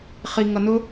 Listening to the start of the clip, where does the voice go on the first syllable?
low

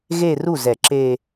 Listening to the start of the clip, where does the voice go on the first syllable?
falling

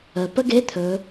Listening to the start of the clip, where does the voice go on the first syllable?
low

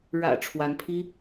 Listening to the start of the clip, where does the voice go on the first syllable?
low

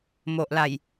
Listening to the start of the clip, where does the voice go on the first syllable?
low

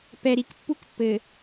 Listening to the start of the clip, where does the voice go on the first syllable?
low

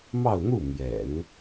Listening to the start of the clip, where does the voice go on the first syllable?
falling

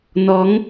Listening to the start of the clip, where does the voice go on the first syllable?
rising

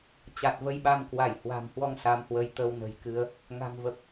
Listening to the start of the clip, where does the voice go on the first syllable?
low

